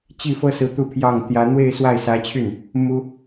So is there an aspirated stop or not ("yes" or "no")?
yes